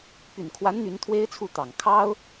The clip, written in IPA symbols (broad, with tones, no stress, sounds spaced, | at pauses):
p y˨˩ n kʰ w a˧˥ n n̪ y˧˥ n t̪ʰ w e˥ ɪ̯ t͡sʰ u˥˩ t̪ ɑ˨˩ ŋ kʰ ɑ˥ ʊ̯